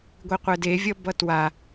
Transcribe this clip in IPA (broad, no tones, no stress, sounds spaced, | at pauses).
ɡʷ i qʷ ɛ d e vʲ ʌ b ʌ t w a